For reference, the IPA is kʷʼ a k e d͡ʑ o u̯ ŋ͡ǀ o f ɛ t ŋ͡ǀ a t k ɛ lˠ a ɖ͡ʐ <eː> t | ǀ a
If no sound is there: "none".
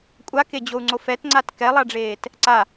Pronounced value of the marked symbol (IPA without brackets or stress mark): eː